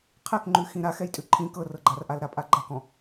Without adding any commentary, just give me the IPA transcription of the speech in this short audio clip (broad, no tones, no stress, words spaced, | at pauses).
qʰɛkŋ͡ǃʉ xĩɾax ɛjtʼʉǃʰĩ kɤrɤɡ͡ǃarʔal ɾapʼaɡ͡ǃɐkɔ̃